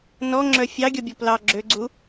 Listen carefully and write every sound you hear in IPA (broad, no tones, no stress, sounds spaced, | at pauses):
n ɔ ŋ͡ǁ œ fʲ ɑ ɡʲ ɔ bʲ ɔ p l ɑ ɡ͡ǁ ø ɡ͡ǀ u